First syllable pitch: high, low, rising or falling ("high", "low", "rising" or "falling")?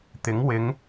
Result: rising